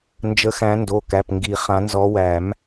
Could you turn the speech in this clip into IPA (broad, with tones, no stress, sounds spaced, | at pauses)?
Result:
n d͡ʒ ə˨˦ x æ̃˨˦ n d o˩˧˩ k æ˩˧˩ p ŋ ɡ i˨˩˦ χ ã˨˦ n z ɔ˨˦ w æ˨˩˦ m